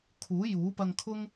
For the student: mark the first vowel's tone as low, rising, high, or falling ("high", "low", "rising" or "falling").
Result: rising